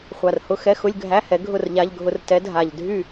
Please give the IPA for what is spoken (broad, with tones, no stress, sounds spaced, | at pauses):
χʷ a˨˩ r h ʊ˧˥˧ x ɛ˧˥˧ x ʊ˧˥˧ lʲ ɡʱ æ˧˥˧ h ɛ˩˥ ɡʱ ʊ˥˨ r ʎ a˧˥˧ ʎ ɡʱ ʊ˧˥˧ r t ɛ˩˥ dʱ a˨˩ ʎ dʱ y˥˨